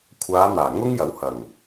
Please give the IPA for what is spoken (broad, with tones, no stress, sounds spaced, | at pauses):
kʷʰ aː˨˧ n̪ aː˨˩ ŋ ʊ˥ ŋ j ɐ˨˥ w h ɐ˨˩ ŋ